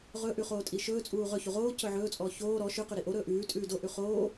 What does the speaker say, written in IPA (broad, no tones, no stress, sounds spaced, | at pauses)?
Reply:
ʁ ɵ ʔ ʉ χ oː tʼ i ʃ ɵː t͡sʼ uː ʁ ɵ ç u ʁ oː c ɵ ʕ ɵː t͡sʼ ɔː ç oː ɾ ɔ ʃ ʉ q ʉ ɾ i ʔ o ɾ ɵː ʔ ʉː tʼ ʉː d o ʔ ʉ χ oː